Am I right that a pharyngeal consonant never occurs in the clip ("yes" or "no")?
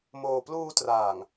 yes